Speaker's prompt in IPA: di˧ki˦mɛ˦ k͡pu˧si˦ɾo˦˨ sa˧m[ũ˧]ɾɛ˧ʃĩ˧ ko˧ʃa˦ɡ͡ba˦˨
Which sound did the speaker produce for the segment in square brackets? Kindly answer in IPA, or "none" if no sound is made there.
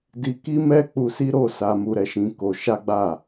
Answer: u˧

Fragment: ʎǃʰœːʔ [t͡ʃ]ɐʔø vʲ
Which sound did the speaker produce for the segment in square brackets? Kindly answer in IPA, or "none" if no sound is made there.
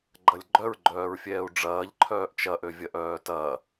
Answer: t͡ʃ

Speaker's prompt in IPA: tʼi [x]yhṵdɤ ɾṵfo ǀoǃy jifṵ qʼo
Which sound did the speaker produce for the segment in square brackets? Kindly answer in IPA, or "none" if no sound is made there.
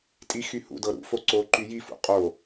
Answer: x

